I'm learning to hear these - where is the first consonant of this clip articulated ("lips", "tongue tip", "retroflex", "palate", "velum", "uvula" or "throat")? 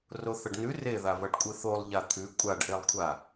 tongue tip